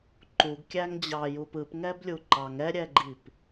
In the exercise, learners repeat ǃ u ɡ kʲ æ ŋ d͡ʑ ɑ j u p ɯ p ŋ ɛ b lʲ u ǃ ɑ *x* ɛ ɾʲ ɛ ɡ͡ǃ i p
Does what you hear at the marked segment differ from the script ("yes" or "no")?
yes